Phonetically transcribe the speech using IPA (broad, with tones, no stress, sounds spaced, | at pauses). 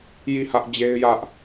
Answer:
j i˦˨ h ä˦ ʔ d͡ʑ e˦ ɪ̯ j ä˦ ʔ